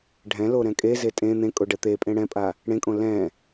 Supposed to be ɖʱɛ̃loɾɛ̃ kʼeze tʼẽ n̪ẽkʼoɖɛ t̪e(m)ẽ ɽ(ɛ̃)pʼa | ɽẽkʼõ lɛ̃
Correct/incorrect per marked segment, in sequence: incorrect, correct

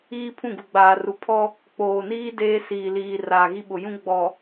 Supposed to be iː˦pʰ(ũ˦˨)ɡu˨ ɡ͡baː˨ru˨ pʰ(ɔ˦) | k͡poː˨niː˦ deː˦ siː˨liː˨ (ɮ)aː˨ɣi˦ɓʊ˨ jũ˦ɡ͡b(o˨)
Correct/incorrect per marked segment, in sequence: correct, correct, incorrect, incorrect

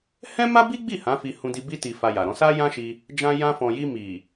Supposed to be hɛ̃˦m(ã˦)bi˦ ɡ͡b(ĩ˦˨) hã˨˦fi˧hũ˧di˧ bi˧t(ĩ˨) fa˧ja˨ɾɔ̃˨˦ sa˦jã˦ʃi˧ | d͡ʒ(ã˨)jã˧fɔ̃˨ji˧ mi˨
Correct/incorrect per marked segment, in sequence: incorrect, incorrect, incorrect, incorrect

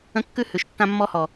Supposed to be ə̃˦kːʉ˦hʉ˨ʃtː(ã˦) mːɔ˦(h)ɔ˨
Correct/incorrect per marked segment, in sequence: correct, correct

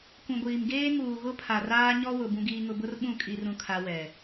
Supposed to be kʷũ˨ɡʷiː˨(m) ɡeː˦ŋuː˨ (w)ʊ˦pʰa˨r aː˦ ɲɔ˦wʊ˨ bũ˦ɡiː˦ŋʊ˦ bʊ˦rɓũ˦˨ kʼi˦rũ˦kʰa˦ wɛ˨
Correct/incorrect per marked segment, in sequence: correct, incorrect

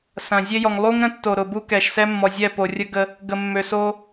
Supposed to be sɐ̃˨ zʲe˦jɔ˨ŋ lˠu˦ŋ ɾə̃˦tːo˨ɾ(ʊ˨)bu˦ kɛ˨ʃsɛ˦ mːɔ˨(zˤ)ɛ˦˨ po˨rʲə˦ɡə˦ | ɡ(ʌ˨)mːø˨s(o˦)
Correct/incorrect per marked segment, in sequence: correct, incorrect, incorrect, correct

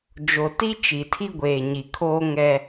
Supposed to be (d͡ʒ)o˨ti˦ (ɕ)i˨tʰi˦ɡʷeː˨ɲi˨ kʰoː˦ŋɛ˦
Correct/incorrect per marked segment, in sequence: correct, incorrect

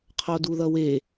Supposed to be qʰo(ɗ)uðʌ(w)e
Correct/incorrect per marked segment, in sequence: incorrect, correct

